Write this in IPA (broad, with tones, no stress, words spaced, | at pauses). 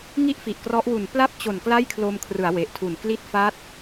ŋi˥˩ʔfi˨˩ʔkrɔ˦˥ʔwu˨˩n pla˥˩p̚t͡ɕo˨˩n kla˥˩jkʰlo˧mkʰrɯ˩˦a̯ we˨˩ʔtʰu˨˩n kli˦˥t̚fa˦˥t̚